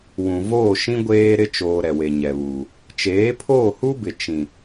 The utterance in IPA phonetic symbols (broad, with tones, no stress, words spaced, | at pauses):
wũ˨voː˦˨ʃĩ˦ ɡʷeː˦ɾɪ˦ t͡ʃoː˨ ɾɛ˨we˨ɲɛ˨βuː˨ | t͡ʃeː˨˦pʰoː˦˨hu˦bɪ˨ t͡ʃĩ˨